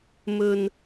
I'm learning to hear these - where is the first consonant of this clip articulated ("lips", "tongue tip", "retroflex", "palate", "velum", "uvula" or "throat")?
lips